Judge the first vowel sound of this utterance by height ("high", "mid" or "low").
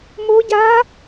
mid